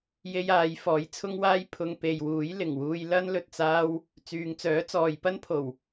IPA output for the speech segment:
j e˥ j aː˨˧ j f ɔː˨˥ j t͡sʰ ʊ˥ ŋ w aː˥ j pʰ ʊ˧ ŋ p e˨ j w uː˨˥ j l ɪ˨˩ ŋ w uː˧ j l ɐ˥ n l ɵ˨ t̚ t͡s aː˥ w | t͡s yː˨ ŋ t͡s œː˨˥ t͡s ɔː˨ j p ɐ˥ n pʰ o˨˩ w

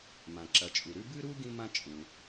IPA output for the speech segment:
m ã˩ ǁ ɐ˩ t͡ʃʼ u˩ ɾ ʉ˥ b ɨ˥ ɾ u˥ ɡ ĩ˥ m ã˥ t͡ʃʼ ũ˩

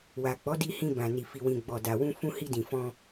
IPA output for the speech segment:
w a˨ k͡p ɔ˨˦ d i˧ h ĩ˧ b ã˨ n i˨ f i˨ w ĩ˨ ɡ͡b ɔ˨ d a˨ w ũ˧ f ũ˧ h i˧ d ĩ˨ f ɔ̃˧

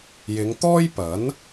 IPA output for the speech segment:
j ɪ˨˧ ŋ t̪ ɔː˥ j p ɐ˨˥ n

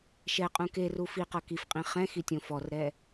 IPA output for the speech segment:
ʃ ɛ qʼ ũ k e r u f i q ɤ k i f qʼ ĩ χ ɛ̃ x i tʲ õ f ɔ r ɾ ɛ

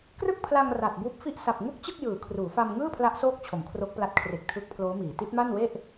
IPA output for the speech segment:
k r ɯ˥˩ k̚ pʰ l a˧ ŋ r a˨˩ t̚ b uː˦˥ p̚ f i˥˩ ʔ s a˨˩ p̚ ŋ u˥˩ k̚ t͡ɕ ɯ˥˩ k̚ j ɯː˩˦ kʰ r uː˩˦ f a˧ m ŋ ɯː˥˩ pʰ l a˦˥ ʔ s oː˦˥ k̚ t͡ɕʰ o˩˦ m kʰ r o˦˥ k̚ p l a˦˥ t̚ kʰ r e˨˩ k̚ tʰ ɯ˦˥ k̚ pʰ l oː˦˥ m iː˩˦ t i˦˥ t̚ m a˥˩ n w e˥˩ ʔ

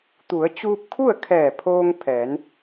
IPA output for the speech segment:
t̪ u˩˧ ə̯ t͡ɕ uː˧ p̚ kʰ u˥˨ ə̯ kʰ ɛː˧˩ pʰ oː˧ ŋ pʰ ɛː˩˧ n

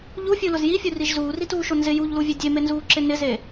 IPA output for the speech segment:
ʎ u fʲ u l ʊ z j i fʲ u r i ʒ z uː r i t uː ʃ o n z ɪ j u ʎ l u vʲ e dʲ e m e n z uː ǁ ɪ n ɪ z e

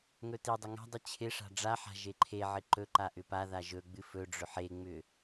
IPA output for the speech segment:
ŋ ɵ t i dˤ ʏ ŋ a̤ dˤ ɨ t͡ɕʰ ɪ ʂ a̤ ɖ͡ʐ a ħ a̤ ʒ e ǃʰ e ʕ ɪ ǃ ɵ ǃ a ʔ ʏ p a ð a ʒ ɵ ɡ͡b ɨ f ɵ ɖ͡ʐ ʏ ħ e ŋ͡m ʏ

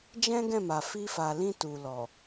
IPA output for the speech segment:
d͡ʒ ɛ̃˦ ɡ ɛ̃˦˨ m a˨ f i˧ f a˨ l ĩ˧ t u˨ l ɔ˨

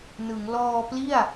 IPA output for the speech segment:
n ɯ˩˦ ŋ l ɔː˧ p l i˥˩ a̯

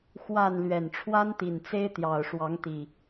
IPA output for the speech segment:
x w a˥˨ n l ɥ ɛ˨˩ n ʈ͡ʂʰ w a˦ n t̪ i˨˩ n t͡s e˦ ɪ̯ t̪ j ɑ˨˩ ʊ̯ ʂ w ɑ˨˦ ŋ t̪ i˨˩

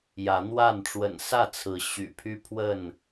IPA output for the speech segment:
j ä˨˦ n̪ w a˥˨ n ʈ͡ʂ w ə̰˨˩ n s ä˥˨ t͡sʰ ɹ̩˨˦ ɕ y̰˨˩ pʰ y˦ pʰ w ə˥˨ n

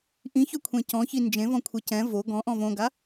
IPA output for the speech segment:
ʔ ĩ ç œ kʷʰ ẽ c ɔ̃ ç i n d͡ʒ ẽ v ɔ̃ kʷʰ e c ɛ̃ v o ɡ ɔ̃ ʔ ɔ̃ v õ ɡ a

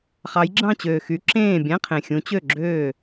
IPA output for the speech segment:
χ ɑ˨˦ j ɡ͡ǁ ɑ̃˥˨ t͡ɕ øː˨˩ x y˨˦ ǁ ẽː˥˨ bʲ æ̃˧˥˧ qʰ ẽ˨˩ xʲ ũ˨˦ t͡ɕ ø˥˨ ɡ͡ǁ øː˥˨

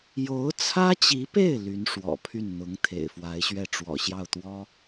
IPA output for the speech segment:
j o˧˥ ʊ̯ t͡sʰ ä˥ t͡ɕ i˧˥ p e˥˩ ɪ̯ l y˧˥ n ʂ w ɔ̰˨˩ pʰ y˥˩ n n̪ ʊ˧˥ ŋ t̪ʰ ḛ˨˩ ɪ̯ f w a˧˥ ɪ̯ ɕ ɥ ɛ˥˩ ʈ͡ʂ w ɔ̰˨˩ ɕ j ɑ˥˩ ʊ̯ t̪ w ɔ˥

